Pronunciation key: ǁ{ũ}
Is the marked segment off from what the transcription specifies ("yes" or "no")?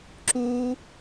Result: yes